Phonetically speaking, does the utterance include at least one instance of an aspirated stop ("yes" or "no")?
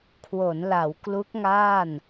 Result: yes